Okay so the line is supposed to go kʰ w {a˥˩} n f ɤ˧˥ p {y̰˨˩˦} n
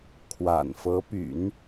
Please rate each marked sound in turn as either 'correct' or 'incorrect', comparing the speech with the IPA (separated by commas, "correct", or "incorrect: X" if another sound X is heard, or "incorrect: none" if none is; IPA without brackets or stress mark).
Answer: incorrect: a̰˨˩, correct